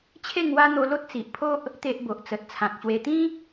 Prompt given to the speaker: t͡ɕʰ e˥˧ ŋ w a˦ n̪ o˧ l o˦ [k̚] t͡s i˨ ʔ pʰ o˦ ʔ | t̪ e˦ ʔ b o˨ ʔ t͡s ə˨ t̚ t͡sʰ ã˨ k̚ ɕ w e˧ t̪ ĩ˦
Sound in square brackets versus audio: incorrect: t̚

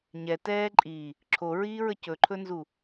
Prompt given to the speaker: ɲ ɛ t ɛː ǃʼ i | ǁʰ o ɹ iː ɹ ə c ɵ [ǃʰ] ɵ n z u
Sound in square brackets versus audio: correct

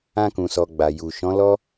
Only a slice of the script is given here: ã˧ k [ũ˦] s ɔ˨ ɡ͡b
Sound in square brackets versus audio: incorrect: ũ˨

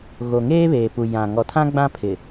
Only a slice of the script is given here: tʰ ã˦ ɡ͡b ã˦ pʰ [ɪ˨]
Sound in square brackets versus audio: correct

